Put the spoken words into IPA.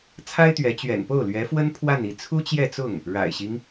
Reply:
t͡sʰ a˥ ɪ̯ t̪ ɥ ɛ˧˥ t͡ɕ ɥ ɛ̰˨˩ n p o˥˩ ʊ̯ l ɥ ɛ˧˥ f w ə˥ n pʰ w a˥˧ n i˥˩ t͡sʰ u˥ t͡ɕ j ɛ˥˧ t͡s ʊ˥˩ ŋ | ɻ a̰˨˩ ɪ̯ ɕ i˦ ŋ

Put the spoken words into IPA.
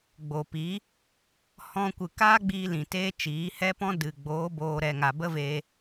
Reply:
ɡ͡b o˨ p i˨˦ | h ɔ̃˧ kʷ ɨ˨ k aː˦ ɡ͡b iː˧ l ĩ˨ t eː˦ t͡ʃ iː˨˦ h ɛ˦ p ɔ̃˦ d ɨ˨ ɡ͡b oː˨˦ b oː˧ ɾ ɛ˧ ŋ a˧ b ə˦ v e˧

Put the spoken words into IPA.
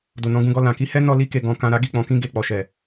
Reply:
d o˨ n ɔ̃˧ ɡ ũ˧ ɡ ɔ˧ l ã˨ k i˧ h ɛ˦ n ɔ˧ l i˧ k e˨ ɡ ɔ̃˧ k ã˧ ɾ a˦ ɡ i˦˨ k͡p ɔ̃˧ k ĩ˦ ɡ e˧ k͡p ɔ˨ ʃ ɛ˨

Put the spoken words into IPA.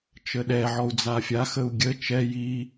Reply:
t͡ʃ ə ɗ ɛ ʕ ɔ u̯ d͡z a fʲ a x ə u̯ ɡʲ ə t͡ʃ ɛ j i

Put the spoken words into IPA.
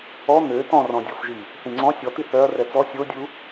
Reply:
ɔ n̪ ø t ɔ̃ r ɔ̃ dʲ ɔ f ʒ i | θ ĩ ŋ͡ǀ ɔ̃ sʲ ɔ t̪ i θ œ ɐ̯ r ɛ t͡s ɔ sʲ o dʲ u

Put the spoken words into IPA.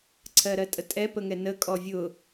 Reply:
ǀʰ ɜ ɾ ɜ tʼ ə tʼ ɛ p ə ŋ ɛ n ə kʼ ɔ vʲ ʊ

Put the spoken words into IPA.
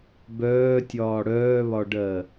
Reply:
b œː tʲ ɒː ɽ œː β ɒ ɖ ɜ

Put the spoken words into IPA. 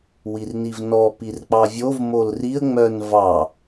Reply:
w i r n i v n ɔ p i r k͡p ɑ vʲ o v m o l r i ə̯ ŋ͡m œ n v ɑ

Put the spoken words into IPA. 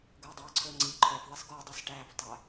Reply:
ɡ ɵː dˤ ɑː ǀʰ ɵː ŋ͡ǀ i ǃʰ œ f ðˤ i s ɡ ɔ dˤ ʉ s ʈ æː f tˤ æ

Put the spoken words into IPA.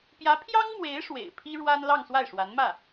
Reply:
p j ä˧˥ pʰ j ɑ˥ ŋ m w e˧˥ ɪ̯ ʂ w ḛ˨˩ ɪ̯ pʰ i˥ ɻ w a˥ n l ɑ˥˧ ŋ s w a˥˩ ɪ̯ ʂ w a˧˥ n m ä˥˩

